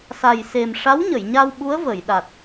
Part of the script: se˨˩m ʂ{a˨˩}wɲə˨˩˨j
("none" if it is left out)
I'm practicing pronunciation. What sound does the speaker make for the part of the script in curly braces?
a˧˥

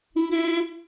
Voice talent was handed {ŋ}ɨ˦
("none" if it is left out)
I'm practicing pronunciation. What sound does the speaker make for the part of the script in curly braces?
ŋ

